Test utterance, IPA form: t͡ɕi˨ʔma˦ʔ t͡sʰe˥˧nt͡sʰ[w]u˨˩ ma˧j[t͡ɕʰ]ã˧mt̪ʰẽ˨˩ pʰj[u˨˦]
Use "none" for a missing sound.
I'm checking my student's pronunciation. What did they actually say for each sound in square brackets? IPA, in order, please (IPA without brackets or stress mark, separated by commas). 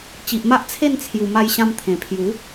j, ɕ, u˨˦